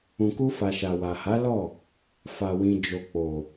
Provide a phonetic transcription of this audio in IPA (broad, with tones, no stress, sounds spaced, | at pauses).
ũ˨ k u˧ f a˨ ʃ a˨ w a˨ h a˨˦ l ɔ˦˨ | f a˨ w ĩ˨ d͡ʒ o˨ k͡p o˨